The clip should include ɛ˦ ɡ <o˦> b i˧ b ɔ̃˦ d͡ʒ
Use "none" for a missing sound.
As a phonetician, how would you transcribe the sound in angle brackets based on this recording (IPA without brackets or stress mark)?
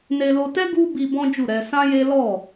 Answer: u˦